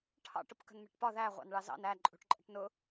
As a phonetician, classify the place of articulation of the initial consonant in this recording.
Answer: retroflex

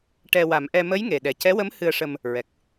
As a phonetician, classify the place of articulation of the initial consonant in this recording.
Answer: retroflex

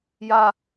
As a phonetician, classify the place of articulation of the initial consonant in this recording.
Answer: palatal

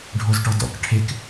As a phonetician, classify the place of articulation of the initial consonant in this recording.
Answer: retroflex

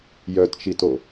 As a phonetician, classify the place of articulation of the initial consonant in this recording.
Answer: palatal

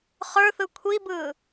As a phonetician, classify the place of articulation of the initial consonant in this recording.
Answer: uvular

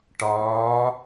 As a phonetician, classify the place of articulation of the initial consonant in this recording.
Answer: retroflex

